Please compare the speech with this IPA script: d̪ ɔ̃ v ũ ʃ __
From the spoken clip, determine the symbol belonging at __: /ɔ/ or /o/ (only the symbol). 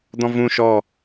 ɔ